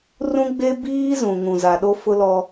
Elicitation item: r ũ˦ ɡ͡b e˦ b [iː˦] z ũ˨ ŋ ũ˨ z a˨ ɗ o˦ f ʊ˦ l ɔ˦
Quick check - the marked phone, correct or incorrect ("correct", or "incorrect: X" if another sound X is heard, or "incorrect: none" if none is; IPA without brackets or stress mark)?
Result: correct